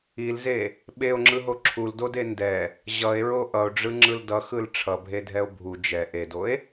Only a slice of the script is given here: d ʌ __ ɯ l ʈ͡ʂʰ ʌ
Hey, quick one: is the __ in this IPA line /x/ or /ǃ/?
x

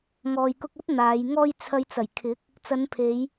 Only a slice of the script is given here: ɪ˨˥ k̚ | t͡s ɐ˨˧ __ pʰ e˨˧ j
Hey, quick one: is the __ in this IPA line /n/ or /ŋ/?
n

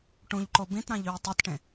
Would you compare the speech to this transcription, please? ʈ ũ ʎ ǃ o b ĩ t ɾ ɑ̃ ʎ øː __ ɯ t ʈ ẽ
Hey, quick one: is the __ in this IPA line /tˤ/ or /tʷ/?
tˤ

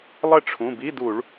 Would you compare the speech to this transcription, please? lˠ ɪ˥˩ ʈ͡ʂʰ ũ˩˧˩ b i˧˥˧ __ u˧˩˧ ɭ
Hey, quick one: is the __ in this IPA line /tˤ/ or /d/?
d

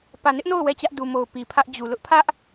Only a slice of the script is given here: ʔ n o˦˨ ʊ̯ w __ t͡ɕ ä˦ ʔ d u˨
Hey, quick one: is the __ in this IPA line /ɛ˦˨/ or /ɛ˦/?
ɛ˦˨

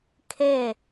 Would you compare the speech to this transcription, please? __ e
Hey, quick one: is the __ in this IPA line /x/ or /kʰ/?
kʰ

